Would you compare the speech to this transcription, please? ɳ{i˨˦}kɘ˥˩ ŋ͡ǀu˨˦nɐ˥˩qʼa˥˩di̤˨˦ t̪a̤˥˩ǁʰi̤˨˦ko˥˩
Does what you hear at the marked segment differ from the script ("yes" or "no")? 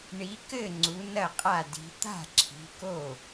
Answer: no